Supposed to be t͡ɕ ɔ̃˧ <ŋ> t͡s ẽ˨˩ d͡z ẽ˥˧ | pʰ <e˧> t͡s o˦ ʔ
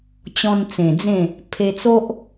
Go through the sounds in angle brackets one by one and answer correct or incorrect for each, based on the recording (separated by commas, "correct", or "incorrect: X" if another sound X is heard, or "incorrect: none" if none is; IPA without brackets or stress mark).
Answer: incorrect: n, correct